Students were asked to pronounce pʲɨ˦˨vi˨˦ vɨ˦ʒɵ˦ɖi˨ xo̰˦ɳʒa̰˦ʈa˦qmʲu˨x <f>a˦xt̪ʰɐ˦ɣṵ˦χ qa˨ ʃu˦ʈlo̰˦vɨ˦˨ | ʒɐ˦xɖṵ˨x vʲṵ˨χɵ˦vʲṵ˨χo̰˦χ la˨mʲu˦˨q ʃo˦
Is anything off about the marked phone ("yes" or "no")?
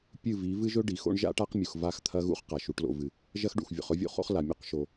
yes